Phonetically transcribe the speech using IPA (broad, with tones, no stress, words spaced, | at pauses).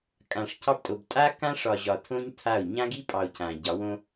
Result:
kʼã˨ʂcʰɑ˦btʼo˨b tʼa˦kã˦ʂɒ˨ ʑɒ˨tʰõ˦ɲ tʰa˦˨o̯ ɲã˦ɡi˦pʼɑ˨o̯ cʰã˨ɟɑ˨˦wõ˦